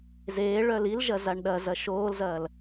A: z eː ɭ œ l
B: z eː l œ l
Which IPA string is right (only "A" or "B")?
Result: A